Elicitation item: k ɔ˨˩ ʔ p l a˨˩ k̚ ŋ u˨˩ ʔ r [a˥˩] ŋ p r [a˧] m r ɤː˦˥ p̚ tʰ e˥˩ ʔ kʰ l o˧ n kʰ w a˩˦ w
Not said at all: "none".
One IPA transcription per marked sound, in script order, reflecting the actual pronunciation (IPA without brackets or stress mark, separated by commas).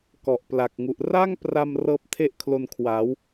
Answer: a˥˩, a˧